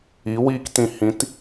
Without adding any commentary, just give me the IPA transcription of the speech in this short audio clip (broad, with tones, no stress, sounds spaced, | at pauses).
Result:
i˨˦ w iː˧ k t ĩ˨ h ĩ˨˦ t